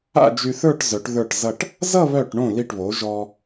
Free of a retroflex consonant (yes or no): no